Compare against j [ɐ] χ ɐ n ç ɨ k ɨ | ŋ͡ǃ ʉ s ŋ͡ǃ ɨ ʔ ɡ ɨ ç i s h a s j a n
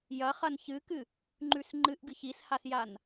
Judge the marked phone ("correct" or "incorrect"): correct